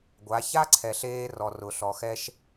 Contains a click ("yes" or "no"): yes